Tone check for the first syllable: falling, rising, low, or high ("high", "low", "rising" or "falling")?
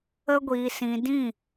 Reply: high